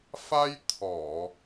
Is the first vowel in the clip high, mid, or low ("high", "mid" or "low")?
low